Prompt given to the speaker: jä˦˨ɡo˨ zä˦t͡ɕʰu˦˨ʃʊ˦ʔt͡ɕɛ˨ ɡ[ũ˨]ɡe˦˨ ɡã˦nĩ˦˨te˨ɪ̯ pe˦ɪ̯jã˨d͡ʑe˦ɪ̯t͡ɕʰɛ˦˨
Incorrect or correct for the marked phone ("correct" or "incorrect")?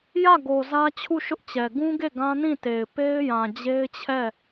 incorrect